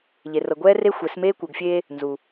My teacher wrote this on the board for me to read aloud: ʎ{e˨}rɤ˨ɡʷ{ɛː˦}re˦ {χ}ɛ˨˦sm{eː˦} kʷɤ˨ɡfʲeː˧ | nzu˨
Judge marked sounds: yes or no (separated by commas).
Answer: yes, yes, no, yes